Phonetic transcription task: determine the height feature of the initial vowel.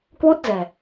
high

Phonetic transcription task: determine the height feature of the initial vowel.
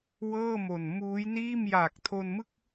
mid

